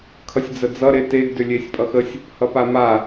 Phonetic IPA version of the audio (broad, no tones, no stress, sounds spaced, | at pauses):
kʰ ʌ sʲ d͡z ə d͡z ʌ ɾ e t e ɡ d ʏ lʲ e sʲ pʼ ʌ x ə sʲ | h ʌ p a m a